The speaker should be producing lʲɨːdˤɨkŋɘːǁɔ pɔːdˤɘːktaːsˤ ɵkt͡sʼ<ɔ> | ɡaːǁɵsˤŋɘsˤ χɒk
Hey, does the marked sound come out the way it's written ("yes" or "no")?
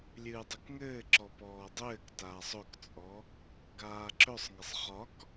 yes